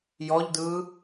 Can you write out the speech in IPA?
j ɔ ʎ d ɯː

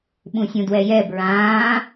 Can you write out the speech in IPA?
ɓ ũ sʲ ũ d w ɛ j ɛ b ɹ ãː

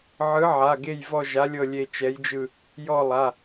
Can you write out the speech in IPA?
ʕ ɯ˨˥ ʕ a˩˧˩ ɡ e˦˨ j v ɔ˦˨ ʒ a˨˥ lʲ ɤ˦˨ lʲ e˦˨ t͡ʃ ɛ˨˥ j d͡ʒ ɯ˦˨ | j ɔ˦˨ lˠ a˩˧˩

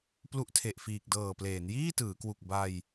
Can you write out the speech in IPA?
p l u˦˥ ʔ tʰ e˨˩ ʔ f iː˨˩ k̚ d ɤː˨˩ p l eː˩˦ n j iː˥˩ t ɯː˩˦ k w u˨˩ k̚ b a˧ j

